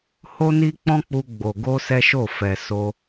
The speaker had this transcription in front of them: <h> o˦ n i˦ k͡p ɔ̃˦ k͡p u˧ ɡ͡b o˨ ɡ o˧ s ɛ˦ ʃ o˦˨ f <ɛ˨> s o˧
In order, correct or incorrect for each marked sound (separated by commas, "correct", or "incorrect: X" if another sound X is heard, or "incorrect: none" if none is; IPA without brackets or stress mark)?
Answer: correct, correct